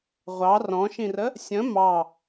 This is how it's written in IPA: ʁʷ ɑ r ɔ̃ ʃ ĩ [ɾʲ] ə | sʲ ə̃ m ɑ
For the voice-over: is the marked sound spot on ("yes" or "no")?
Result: no